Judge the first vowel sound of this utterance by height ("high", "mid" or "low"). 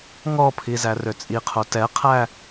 mid